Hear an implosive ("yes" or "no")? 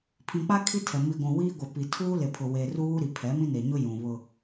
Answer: no